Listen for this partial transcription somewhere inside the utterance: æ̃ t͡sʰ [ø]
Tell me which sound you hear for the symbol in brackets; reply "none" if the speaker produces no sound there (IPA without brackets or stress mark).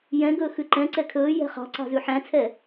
ɛ